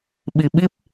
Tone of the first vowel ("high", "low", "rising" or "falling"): low